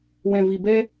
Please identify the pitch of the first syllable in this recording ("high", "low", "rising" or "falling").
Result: low